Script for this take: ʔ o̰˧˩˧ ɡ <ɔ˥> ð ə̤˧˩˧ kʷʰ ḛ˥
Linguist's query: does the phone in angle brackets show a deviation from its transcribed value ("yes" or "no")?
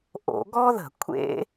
no